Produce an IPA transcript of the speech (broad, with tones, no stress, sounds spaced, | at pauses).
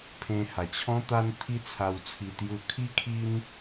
pʰ ẽ˧ h a˨˩ t͡ɕʰ ɔ̃˦ t̪ a˦ n t̪ʰ i˦ t͡sʰ a˧ w t͡sʰ i˧ t̪ j u˧ kʰ i˦ kʰ i˦ n